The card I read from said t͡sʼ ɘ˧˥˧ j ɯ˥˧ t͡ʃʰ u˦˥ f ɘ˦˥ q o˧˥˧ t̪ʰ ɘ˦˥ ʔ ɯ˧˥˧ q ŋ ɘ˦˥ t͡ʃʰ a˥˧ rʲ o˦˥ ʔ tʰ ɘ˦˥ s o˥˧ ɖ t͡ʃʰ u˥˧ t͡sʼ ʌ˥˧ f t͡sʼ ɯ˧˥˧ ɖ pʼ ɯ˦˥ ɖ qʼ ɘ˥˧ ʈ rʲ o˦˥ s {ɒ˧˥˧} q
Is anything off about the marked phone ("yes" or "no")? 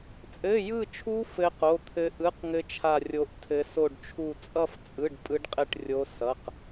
yes